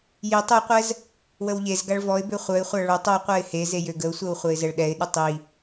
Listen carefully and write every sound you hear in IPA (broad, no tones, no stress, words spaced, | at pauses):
jitˤ øqʷɛz | wəwʎezɡaɭ vɔɪ̯bø χʷœɪ̯χʷa ɭotˤ oqʷɛɪ̯ he zejøɡəʊ̯sʷɛw χʷɛɪ̯zɛɭɗɛɪ̯ɗə tˤi